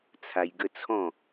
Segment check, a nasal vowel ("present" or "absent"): present